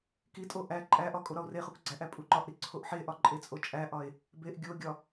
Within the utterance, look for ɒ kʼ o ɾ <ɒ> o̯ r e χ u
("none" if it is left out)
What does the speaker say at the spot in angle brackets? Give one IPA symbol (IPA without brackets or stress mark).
ɒ